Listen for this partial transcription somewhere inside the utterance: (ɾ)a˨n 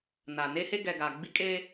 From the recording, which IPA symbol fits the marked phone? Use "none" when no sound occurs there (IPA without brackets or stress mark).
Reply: n